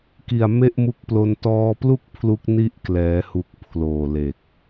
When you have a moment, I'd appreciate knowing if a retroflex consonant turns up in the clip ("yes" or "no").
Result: no